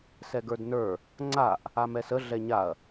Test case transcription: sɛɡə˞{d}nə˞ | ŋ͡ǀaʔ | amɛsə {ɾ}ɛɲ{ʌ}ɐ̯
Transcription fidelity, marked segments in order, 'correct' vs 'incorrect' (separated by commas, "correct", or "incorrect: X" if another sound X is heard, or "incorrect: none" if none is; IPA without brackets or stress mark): correct, incorrect: ɮ, incorrect: a